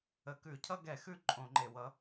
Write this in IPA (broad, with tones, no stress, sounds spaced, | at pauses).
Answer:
ə˨˩ k ʉ˧˩˧ cʰ ʌ˦ ɡ ɛ˧˩˧ x ʉ˦ ǃʼ õ˧˩˧ ŋ͡ǃ e˨˩ w ʌ˨˥